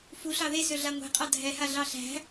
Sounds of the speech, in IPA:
fuɬɑ ðesø ɮaŋʷe̤qʼɑ dʱɛha ɮɑɬæ̤

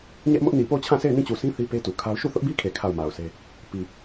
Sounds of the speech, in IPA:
ɲɛ˦ʔmʊ˦ʔ ni˨po˦˨ʊ̯t͡ɕʰã˦˨sʰe˦˨ɪ̯ nĩ˦˨t͡ɕu˨sĩ˦ θi˦pe˦tu˨kʰa˦ʊ̯ ʃu˦˨θʊ˦ʔbi˦kʰe˨ kʰa˦˨ʊ̯ma˨ʊ̯se˦ | pi˨

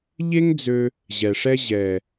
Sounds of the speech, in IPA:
ʎe˦ŋ d͡zø˦ | ʑɛ˨ʂɛ˦ ʑɛ˨

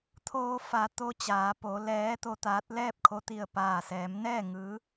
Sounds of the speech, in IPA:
t̪ʰoː˧fa˩˧t̪o˧ t͡ɕaː˩˧po˩˧ lɛː˧˥t̪o˧t̪aː˧˥t̚ lɛː˥˨p̚kʰo˧ t̪i˧˩ə̯paː˧˩sɛː˩˧mnɛː˥˨ ŋɯː˧˥

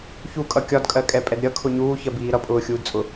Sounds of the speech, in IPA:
çukʼʌ kʲɒdkʼɜkʼɛpʼɛd ɾʲʌkʰʊ ɲuːçɜbiː ɾʌpʼʊːxʲuːdt͡sʼʊ

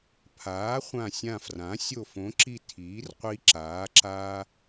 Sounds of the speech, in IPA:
pʰaː˩˥χʷã˧˩sʲã˧˩frã˩˥ sʲo˧˩fõ˩˥ǁi˧˩ tʰiː˩˥rqʷi˧ ǁaː˩˥ ǁa˧

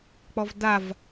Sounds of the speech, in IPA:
k͡pɔvdav

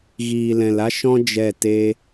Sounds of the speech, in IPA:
ɣiː˨lɛ̃˨la˦ʃɔ̃˦ d͡ʒɛ˦˨ te˧

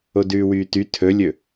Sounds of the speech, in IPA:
odʉːwyːty tʰɵlʲɵ

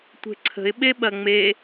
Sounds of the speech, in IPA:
tʷe̤ǀʰə̤ɪ̯ ɓeɓɐŋ͡me

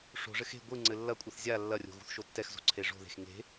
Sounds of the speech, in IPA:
ʂo̤ʐɘx e̤ ɡʷɨ ŋ͡ǀɘlːɐkʷʼɨθ zʲa lːɐrʲo̤ ɣṳθʃotːɛxzo̤ ǀʰeʐo̤ðe̤x ŋe̤

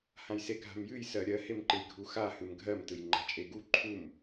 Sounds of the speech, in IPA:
hãjseɡʱa̤mjɨj sɜɾʲɜ hemǃɨjɡʱuxa hɨmɡʱɜm tɯjŋ͡ǃa̤t͡ʃʼeɡu ǃʰum

